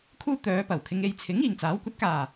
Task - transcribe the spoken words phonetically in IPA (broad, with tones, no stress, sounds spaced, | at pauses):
kʰ uː˥ t̪ œː˨˧ p ɐ˨˩ w kʰ ɪ˨˧ ŋ e˨ j t͡sʰ ɪ˨˥ ŋ iː˨ ŋ t͡s aː˨˥ w kʷ ɐ˨˥ t̚ k aː˨˩